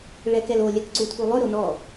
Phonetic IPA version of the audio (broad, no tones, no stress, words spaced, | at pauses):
ɭɛkɛlo lʲɛkǀutʰulˠɵ ɾonɔ